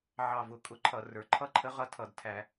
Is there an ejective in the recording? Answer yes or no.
yes